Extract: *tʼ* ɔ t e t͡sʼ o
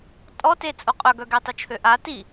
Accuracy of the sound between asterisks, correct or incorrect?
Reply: correct